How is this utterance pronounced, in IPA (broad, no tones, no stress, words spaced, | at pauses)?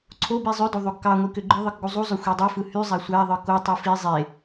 ǀʰobi zˤødo ðˤoɡkɑŋʷi køɡ͡ǃɯðˤɯk ɡuzˤuzˤø xʷedˤɯfɯ hy zˤæsʷæðˤɯ kotˤi fi zˤe